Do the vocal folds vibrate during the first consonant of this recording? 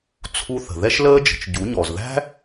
no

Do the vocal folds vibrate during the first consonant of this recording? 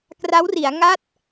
no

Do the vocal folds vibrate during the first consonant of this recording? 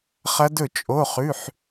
no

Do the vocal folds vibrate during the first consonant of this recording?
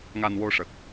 yes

